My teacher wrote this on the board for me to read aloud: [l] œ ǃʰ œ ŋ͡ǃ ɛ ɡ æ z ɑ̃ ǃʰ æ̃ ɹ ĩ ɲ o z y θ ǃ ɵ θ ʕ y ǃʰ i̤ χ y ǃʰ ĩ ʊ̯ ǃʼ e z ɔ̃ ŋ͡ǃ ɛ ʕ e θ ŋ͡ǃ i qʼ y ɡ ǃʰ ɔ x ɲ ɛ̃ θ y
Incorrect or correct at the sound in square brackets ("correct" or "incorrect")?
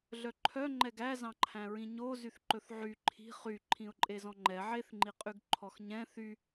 incorrect